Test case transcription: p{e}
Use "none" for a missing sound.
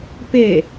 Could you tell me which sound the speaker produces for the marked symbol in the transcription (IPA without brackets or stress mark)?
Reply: e